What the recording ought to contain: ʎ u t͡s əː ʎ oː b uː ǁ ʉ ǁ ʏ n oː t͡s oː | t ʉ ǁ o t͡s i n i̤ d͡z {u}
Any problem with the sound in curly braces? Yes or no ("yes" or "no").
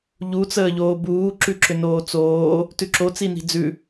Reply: yes